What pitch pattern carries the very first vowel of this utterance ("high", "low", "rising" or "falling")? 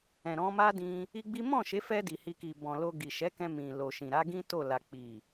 low